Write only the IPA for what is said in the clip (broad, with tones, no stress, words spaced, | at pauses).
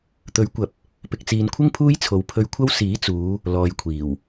t̪ɵ˨˥ɥkʷɐ˨˥p̚ | pɪ˨k̚t͡siː˨nkʷʰɪ˥ŋ pʰuː˥jt͡sʰo˨wpʰɵ˧ɥkʷʰɐ˥w siː˨˥t͡suː˨˧ | lɔː˨jkʷʰiː˨˩w